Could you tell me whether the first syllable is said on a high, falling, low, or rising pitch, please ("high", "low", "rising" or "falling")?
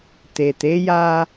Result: low